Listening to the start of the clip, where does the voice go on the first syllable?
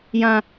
high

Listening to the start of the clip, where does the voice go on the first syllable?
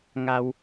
low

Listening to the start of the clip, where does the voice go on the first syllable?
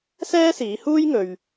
high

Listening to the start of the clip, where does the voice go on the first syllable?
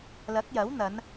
rising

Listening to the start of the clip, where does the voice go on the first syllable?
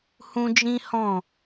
high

